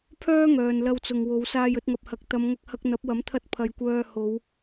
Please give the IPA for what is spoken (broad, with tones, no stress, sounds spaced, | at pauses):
pʰ œː˥ ŋ œː˨ n l ɐ˧ w t͡s ʊ˨ ŋ w o˨˧ w s aː˧ j ɵ˧ t̚ ŋ ɐ˨ p̚ h ɐ˨ k̚ t̪ ɐ˨˧ m ŋ ɐ˧ k̚ h ɐ˧ k̚ n̪ ɐ˨˥ p̚ w ɐ˨˥ m t̪ʰ ɐ˧ t̚ pʰ ɐ˨ j kʷ œː˧ h o˨˧ w